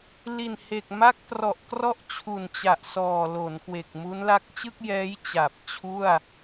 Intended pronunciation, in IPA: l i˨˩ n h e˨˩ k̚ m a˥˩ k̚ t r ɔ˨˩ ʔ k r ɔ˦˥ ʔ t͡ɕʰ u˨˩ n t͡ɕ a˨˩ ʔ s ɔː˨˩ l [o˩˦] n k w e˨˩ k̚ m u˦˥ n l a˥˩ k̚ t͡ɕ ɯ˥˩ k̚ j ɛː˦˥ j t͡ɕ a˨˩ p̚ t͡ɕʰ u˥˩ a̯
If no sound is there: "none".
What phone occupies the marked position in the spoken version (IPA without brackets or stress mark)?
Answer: o˩˦